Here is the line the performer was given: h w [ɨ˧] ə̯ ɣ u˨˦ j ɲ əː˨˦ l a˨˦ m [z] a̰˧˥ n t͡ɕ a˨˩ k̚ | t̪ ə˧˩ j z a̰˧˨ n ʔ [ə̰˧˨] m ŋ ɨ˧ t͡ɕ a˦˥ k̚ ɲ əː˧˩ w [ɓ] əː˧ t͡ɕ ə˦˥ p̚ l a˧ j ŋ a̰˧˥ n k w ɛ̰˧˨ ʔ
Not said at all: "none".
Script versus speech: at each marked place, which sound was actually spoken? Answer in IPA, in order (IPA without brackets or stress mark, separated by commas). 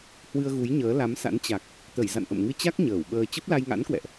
ɨ˧, s, ə̰˧˨, ɓ